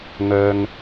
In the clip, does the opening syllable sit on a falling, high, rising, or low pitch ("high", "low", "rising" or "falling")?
low